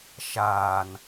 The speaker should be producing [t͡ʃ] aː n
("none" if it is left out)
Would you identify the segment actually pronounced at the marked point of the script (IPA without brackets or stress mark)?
ʃ